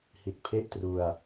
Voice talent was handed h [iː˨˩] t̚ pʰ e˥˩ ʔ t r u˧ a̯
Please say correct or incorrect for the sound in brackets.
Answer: incorrect